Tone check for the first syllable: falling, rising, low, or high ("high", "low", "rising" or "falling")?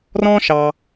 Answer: high